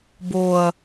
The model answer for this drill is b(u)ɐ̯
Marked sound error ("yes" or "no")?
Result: yes